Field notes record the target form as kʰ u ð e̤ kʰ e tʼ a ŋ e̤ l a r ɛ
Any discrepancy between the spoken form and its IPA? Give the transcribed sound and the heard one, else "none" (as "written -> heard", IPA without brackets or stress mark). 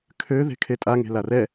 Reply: u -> ø